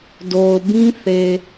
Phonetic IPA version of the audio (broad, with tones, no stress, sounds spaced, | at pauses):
d o˨ ʊ̯ b ĩ˦ θ e˨